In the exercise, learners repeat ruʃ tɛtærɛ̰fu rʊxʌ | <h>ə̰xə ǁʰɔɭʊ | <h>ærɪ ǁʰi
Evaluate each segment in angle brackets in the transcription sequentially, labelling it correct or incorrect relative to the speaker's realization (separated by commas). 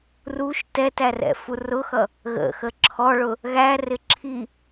incorrect, incorrect